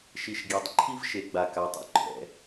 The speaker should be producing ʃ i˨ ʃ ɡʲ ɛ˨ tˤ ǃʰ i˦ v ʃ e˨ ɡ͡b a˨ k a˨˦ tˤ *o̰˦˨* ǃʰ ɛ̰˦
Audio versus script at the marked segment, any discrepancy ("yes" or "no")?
yes